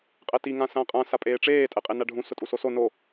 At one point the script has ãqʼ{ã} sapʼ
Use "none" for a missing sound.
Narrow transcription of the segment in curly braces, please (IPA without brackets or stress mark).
ã